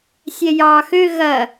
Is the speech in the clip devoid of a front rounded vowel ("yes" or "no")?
no